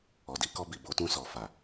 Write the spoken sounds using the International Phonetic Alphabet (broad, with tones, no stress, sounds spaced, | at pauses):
ɔ˨ d i˧ k ɔ˧ b i˨ b o˨˦ t ũ˧ s ɔ˨ f a˨